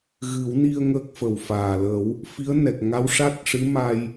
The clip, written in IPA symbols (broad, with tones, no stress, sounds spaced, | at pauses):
ɣ ɨ˨˩˦ w n i˧ ə̯ ŋ əː˦˥ k̚ f ə˨˩ w f aː˨˩ l ə˨˩˦ w | f i˧˥ ə̯ n ɛ˨˩ k̚ ŋ a˧˥ w ʂ a˦˥ t̚ ʂ ɨ˧˥ m a˧ j